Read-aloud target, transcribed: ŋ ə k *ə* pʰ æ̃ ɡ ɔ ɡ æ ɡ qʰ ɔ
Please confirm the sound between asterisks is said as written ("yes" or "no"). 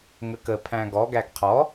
yes